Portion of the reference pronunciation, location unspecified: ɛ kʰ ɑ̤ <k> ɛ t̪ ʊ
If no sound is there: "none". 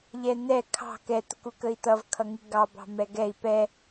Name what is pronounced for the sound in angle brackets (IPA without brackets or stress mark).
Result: k